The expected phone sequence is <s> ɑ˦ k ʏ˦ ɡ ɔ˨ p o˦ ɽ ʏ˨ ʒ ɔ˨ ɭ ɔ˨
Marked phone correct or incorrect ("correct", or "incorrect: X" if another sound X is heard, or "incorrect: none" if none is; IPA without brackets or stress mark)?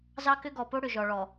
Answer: incorrect: z